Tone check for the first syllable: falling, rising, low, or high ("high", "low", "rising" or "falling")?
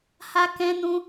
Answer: high